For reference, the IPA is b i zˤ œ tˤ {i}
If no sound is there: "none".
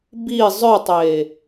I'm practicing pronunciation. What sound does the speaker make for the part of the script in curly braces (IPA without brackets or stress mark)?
e